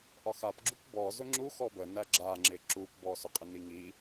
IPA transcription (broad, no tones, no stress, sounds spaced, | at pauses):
ʔ ɒ x a p ɡ͡ǁ u p b ɔ z ʊ ŋ͡ǁ u x ɔ b ə n æ ɡ͡ǁ a ŋ͡ǁ ɪ ǁ u p b ɔ s ʊ qʼ ɪ n i ŋ i